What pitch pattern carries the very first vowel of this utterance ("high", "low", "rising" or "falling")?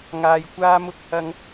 low